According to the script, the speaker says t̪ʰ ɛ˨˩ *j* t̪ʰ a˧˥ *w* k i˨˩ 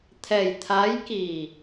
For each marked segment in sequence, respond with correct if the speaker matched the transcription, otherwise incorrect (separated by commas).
correct, incorrect